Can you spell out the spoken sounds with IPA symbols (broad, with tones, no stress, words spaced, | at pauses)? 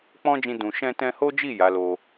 k͡pɔ̃˦d͡ʒĩ˧ dũ˨ ʃɛ̃˧tɛ̃˧ho˦d͡ʒi˦˨ ja˨˦lo˧